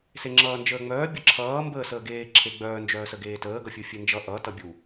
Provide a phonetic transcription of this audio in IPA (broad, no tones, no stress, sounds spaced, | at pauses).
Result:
s e ŋ͡ǁ ʌː n d͡ʒ əː ŋ͡m œː bʲ ʌ ǁʰ ʌː m b əː s əː ɡ eː ǁʰ e ɡ͡b œː n d͡ʒ œː s ə ɡ eː t əː ɡ ʌ fʲ u fʲ e n d͡ʒ ʌ ʔ ʌ t ʌ bʲ u